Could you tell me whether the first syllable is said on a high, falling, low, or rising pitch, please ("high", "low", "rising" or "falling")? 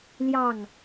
falling